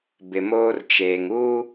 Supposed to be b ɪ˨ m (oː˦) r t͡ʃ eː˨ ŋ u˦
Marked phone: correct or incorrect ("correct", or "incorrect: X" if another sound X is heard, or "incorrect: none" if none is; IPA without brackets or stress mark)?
correct